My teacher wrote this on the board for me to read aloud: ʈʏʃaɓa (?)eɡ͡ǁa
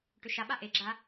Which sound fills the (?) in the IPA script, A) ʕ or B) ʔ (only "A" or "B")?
B